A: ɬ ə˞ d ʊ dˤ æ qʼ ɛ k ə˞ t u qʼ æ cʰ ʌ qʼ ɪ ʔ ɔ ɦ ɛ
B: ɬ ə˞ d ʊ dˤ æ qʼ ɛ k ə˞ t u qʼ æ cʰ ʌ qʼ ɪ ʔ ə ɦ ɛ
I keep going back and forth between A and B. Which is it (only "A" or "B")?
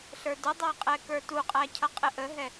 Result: B